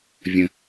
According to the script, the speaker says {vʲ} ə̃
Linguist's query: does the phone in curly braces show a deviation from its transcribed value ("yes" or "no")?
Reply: no